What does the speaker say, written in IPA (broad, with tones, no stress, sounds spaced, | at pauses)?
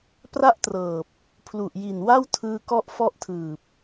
p r a˥˩ ʔ t r ɤː˨˩ p̚ | pʰ l u˨˩ ʔ j i˨˩ n w a˥˩ w tʰ ɯː˧ k ɔ˦˥ ʔ f ɔ˦˥ ʔ tʰ ɯː˨˩ p̚